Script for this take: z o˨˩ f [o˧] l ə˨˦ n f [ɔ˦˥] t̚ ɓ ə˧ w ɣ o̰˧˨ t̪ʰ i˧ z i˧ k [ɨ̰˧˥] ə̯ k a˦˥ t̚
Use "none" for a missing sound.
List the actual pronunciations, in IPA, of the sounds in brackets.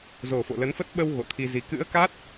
o̰˧˨, ə˦˥, ɨ̰˧˥

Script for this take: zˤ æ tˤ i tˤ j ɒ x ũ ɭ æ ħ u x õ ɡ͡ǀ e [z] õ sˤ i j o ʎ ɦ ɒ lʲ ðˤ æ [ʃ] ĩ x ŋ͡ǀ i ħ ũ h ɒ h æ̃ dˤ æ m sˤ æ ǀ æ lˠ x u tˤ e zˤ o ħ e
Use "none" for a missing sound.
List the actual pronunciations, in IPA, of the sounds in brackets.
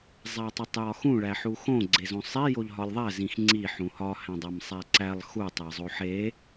z, z

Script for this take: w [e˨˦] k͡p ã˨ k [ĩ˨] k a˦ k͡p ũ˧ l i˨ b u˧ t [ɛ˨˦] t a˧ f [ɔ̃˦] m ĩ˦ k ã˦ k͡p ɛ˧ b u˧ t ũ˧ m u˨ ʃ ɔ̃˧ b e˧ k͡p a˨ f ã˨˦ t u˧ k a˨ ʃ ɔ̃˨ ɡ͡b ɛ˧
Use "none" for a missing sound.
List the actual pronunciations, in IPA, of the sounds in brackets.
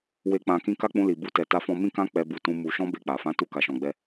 e˨, ĩ˧, ɛ˨, ɔ̃˧

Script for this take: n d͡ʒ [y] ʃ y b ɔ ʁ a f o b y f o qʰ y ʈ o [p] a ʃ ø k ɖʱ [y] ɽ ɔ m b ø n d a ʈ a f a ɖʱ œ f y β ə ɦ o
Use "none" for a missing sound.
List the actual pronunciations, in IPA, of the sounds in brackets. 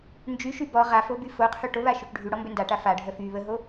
y, β, y

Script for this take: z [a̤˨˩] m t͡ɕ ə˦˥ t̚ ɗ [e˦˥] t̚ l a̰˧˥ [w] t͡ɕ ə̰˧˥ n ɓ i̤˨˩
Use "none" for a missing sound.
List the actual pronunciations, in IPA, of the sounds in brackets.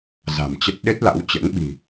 a̤˨˩, e˦˥, w

